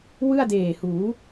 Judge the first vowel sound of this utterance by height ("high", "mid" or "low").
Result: high